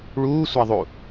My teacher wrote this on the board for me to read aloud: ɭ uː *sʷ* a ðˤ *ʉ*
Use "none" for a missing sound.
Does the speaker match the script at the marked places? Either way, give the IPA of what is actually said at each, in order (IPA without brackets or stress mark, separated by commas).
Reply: sʷ, u